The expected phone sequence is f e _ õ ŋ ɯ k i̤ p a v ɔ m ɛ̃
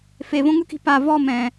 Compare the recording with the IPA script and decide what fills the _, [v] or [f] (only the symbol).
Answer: v